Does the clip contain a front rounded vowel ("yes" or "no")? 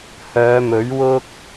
yes